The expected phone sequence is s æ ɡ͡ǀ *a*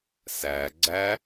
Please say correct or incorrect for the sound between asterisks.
incorrect